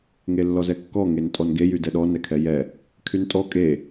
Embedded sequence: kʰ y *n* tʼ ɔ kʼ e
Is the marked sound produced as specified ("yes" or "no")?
yes